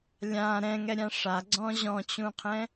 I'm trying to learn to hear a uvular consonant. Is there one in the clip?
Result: yes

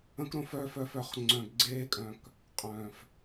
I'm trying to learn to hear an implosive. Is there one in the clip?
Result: no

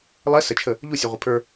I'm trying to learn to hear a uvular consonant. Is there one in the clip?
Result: yes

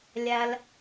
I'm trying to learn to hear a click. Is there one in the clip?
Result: no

